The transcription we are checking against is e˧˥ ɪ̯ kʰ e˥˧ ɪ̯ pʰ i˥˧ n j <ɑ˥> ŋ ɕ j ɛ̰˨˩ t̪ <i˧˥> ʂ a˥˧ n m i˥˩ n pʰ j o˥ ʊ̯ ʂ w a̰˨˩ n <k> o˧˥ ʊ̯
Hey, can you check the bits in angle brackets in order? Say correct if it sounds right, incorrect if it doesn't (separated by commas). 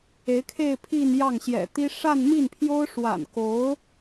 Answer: incorrect, incorrect, correct